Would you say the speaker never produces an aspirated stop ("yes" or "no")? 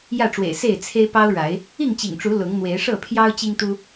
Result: no